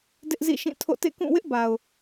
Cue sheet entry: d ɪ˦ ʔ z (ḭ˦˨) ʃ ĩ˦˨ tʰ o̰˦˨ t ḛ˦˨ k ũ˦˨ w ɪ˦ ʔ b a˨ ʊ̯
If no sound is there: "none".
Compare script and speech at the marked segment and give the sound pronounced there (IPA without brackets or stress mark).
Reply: ḭ˦˨